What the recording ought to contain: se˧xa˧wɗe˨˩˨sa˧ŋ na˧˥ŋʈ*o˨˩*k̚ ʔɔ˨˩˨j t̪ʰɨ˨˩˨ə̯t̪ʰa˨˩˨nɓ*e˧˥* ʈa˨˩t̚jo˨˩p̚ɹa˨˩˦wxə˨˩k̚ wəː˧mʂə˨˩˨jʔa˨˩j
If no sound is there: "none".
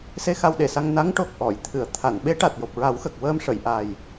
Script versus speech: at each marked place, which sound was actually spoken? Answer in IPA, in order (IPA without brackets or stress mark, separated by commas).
o˨˩, e˧˥